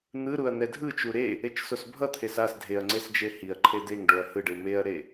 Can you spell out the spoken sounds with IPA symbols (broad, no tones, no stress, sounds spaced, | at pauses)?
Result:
n̪ ɯ ɾ u ɐ̯ n̪ ɛ dʱ ɯ t͡ʃ u ɾ e | e t͡ʃ s o s bʱ ʌ t̪ʰ e s a s dʱ e ɐ̯ ŋ͡ǀ e s d͡ʒ e h i ɐ̯ ǃʰ e d̪ e ŋ ɖ o ɐ̯ h ɯ ɖ ɯ m e ɐ̯ ɾ e